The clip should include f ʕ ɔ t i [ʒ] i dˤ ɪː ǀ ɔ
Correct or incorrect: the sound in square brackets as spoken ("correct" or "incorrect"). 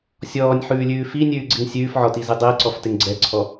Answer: incorrect